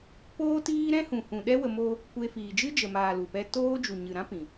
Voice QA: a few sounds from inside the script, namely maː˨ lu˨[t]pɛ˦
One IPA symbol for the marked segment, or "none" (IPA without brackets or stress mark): none